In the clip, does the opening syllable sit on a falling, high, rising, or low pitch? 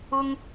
high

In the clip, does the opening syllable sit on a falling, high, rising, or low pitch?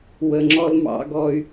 low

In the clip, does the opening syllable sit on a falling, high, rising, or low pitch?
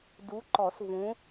rising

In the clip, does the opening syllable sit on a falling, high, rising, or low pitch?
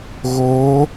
rising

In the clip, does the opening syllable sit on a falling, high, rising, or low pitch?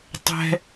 high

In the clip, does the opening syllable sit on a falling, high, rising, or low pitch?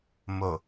low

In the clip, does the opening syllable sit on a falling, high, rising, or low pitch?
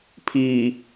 low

